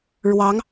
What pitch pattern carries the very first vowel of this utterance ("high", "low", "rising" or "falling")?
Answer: rising